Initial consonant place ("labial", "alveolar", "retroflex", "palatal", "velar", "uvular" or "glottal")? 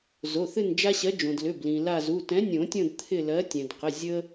alveolar